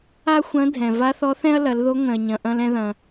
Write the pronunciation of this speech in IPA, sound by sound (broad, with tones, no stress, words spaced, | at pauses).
a˥xʷɐ̃˧˥dʱɛ̃˩ va˧˥θɔ˧˥θɛ̃˥ɐ̯lɐ˩˧l ðo˧˥ŋʷɛ̃˩ɐ̯ɲɐ̃˩ ʔɐ̃˧lɛ̃˧ðɐ̃˩